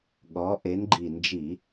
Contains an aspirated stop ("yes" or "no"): no